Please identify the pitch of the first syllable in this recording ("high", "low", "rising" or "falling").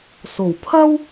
low